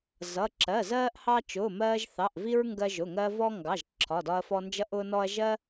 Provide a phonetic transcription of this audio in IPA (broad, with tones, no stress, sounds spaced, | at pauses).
z ʌ˩˧˩ ǁ ɜ˩˧˩ z ɜː˧ ʔ h ɑ˧ t͡ʃ ʊː˩˧˩ m ɜː˧ ʒ θ ɑ˩˧˩ ʔ v i˧ ɹ ŋ ɡ ɜ˧ ʒ ʊ˩˧˩ ŋ ɜ˧ v ɔ˧ ŋ ɡ ɑ˩˧˩ ʒ ǁʰ ɒ˩˧˩ d ɒ˧ ɐ̯ f ɔ˧ n d͡ʒ ʌ˧ ʔ ʊː˧ n ɔ˧ ɐ̯ ʒ ɜ˧